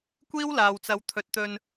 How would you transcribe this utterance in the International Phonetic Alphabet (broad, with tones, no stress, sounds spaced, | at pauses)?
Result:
kʷ iː˥ w l aː˨ w t͡s ɐ˨˧ w t̪ʰ ɵ˨ t̚ t̪ ɵ˧ n